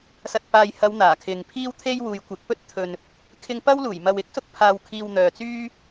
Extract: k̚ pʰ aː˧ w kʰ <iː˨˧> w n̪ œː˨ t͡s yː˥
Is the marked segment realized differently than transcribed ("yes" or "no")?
yes